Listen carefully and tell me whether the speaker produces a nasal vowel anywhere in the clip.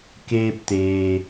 no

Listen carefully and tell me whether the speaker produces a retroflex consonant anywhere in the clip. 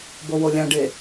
yes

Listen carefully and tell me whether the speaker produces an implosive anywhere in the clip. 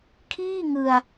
no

